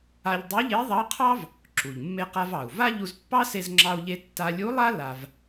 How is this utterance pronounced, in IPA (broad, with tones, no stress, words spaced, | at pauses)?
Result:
a˧ʎdˤu˧˥ʎe˧˥ ðˤɑ˧˥qʰɑ˥v | ǁu˩ʎmːe˧qa˧v ɑ˩u̯va˥ʎu˧z pːɑ˥se˧zŋ͡ǁɑ˧u̯ʎe˧ tːa˧lʲu˧˥lˠa˥ la˧v